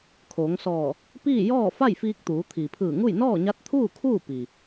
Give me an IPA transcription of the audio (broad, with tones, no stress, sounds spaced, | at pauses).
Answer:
kʰ o˩˧ ŋ s ɔː˧˩ | p iː˥˨ j ɔː˥˨ f a˥˨ j f iː˧ k̚ t̪ uː˩˧ t̪ʰ iː˩ pʰ ɯː˧˩ ŋ u˥˨ j n ɔː˥˨ ɲ a˧˥ t̚ t̪ʰ uː˥˨ kʰ uː˥˨ p i˩